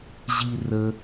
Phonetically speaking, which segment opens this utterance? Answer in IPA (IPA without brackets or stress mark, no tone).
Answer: ʑ